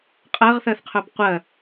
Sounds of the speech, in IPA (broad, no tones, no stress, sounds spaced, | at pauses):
qʼ ɜ ʁ θ ɜ θ qʰ œ b qʷ ɜ